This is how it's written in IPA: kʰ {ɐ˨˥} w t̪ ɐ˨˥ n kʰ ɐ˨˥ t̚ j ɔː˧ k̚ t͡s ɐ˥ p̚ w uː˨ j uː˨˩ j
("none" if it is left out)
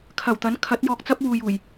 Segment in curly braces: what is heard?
ɐ˨˩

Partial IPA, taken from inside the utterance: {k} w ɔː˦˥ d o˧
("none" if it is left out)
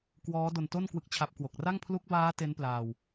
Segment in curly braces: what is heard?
k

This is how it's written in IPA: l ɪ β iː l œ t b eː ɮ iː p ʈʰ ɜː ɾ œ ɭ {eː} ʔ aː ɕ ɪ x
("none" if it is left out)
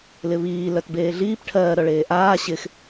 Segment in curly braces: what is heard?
eː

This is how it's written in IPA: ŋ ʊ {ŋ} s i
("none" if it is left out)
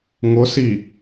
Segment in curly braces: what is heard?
none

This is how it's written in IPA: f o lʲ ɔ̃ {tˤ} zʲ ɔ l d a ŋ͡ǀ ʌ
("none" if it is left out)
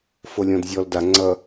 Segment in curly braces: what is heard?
d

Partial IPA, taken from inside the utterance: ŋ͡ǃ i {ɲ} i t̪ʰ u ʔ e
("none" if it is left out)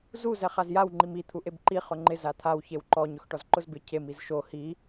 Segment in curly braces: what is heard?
m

